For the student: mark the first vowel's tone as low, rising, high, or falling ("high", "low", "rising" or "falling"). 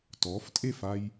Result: rising